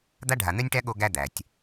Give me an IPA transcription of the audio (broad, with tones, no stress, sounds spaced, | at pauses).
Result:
d̪ a˥ ɖʱ a˨ n̪ ɛ˥ nʲ ʈ æ˥ ɠ o˦ ɡ æ˦ d̪ æ˩ tʲ